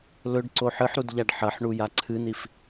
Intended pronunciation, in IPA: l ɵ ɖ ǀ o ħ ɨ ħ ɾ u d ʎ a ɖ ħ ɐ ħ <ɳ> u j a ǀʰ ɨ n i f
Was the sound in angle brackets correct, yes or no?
yes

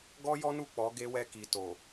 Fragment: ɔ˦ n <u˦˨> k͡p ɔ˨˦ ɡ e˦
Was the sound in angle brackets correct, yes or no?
yes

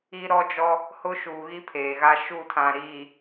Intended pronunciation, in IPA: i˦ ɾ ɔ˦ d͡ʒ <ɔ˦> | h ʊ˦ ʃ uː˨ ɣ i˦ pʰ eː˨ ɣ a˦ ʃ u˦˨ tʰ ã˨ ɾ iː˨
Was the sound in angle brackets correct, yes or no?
yes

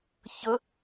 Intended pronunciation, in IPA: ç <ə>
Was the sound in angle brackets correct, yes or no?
yes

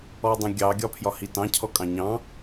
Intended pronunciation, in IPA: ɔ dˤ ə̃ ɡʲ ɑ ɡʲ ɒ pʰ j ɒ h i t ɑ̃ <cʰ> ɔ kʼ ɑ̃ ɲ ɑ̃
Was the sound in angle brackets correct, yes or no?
yes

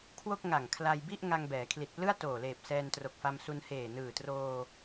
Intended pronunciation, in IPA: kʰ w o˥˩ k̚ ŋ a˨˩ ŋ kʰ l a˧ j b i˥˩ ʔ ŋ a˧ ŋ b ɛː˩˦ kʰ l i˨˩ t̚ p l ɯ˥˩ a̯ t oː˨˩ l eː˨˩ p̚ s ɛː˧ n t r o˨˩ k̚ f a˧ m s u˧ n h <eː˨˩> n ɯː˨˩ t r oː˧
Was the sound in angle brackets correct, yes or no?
yes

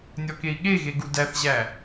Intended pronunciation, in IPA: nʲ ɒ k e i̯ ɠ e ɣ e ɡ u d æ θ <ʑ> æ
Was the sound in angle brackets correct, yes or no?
yes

